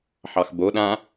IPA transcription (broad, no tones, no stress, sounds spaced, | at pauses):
ħ ɑ x b o ɗ ã